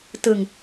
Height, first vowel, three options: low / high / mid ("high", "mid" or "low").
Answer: high